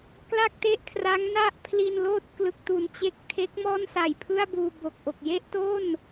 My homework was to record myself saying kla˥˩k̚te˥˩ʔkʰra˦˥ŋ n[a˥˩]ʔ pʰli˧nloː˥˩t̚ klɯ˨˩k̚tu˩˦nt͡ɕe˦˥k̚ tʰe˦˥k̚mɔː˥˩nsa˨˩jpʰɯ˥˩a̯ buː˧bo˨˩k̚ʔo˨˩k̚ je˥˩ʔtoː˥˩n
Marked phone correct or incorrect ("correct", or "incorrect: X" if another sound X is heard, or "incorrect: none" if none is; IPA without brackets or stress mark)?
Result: correct